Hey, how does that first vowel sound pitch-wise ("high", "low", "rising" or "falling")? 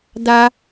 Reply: high